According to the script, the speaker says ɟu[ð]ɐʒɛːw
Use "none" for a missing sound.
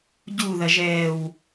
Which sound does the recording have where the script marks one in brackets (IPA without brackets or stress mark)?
ð